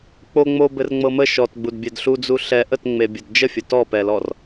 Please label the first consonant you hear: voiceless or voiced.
voiceless